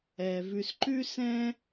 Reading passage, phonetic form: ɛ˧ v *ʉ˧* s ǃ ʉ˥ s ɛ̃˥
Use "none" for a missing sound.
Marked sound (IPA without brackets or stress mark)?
ʉ˧